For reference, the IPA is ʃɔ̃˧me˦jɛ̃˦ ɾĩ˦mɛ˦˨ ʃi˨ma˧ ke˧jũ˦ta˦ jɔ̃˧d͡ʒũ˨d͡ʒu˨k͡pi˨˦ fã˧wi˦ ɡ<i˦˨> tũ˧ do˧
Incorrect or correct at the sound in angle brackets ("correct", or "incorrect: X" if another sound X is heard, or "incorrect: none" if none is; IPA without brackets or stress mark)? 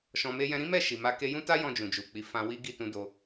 correct